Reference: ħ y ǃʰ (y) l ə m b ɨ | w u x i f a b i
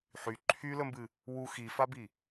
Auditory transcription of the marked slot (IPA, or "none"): y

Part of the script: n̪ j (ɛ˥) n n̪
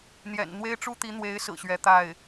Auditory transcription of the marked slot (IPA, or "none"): ɛ̰˨˩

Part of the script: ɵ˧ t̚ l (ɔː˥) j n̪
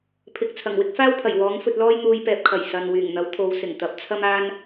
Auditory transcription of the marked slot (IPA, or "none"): ɔː˥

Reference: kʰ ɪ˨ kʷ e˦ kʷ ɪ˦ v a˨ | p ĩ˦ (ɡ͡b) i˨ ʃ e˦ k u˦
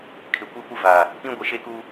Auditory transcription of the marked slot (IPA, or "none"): ɡʷ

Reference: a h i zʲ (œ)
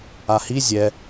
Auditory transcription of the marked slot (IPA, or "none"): ɛ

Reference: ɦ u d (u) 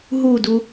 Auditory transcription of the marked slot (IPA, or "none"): u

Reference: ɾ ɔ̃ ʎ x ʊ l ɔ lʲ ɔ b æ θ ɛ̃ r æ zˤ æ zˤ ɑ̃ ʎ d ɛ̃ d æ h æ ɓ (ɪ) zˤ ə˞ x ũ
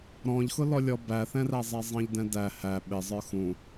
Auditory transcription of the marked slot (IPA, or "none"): ɪ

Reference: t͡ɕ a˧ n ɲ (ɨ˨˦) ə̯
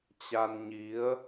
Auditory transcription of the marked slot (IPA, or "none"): i˨˦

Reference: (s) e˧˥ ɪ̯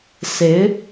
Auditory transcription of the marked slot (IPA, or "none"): s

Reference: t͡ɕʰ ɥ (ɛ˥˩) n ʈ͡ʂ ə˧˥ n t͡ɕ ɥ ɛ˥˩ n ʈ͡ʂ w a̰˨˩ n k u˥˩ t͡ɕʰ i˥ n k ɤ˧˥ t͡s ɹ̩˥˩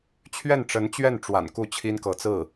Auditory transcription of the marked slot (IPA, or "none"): ɛ˥˩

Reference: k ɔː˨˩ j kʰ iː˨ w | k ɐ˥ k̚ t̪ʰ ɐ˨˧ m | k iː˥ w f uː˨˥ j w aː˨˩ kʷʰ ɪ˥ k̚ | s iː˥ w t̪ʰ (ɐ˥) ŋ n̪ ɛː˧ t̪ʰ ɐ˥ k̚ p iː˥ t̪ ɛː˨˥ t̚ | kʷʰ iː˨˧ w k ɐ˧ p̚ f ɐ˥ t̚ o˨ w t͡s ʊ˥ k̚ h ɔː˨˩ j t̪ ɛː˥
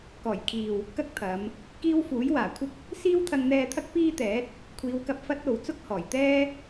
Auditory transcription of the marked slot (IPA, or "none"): ɐ˧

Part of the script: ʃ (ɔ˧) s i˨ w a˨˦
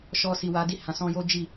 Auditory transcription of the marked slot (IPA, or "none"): ɔ˧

